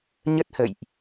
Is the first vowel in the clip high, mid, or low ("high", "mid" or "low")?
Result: mid